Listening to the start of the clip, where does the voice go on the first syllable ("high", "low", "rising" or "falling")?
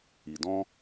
low